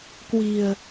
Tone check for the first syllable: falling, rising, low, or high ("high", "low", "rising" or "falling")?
low